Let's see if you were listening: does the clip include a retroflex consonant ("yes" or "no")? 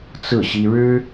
yes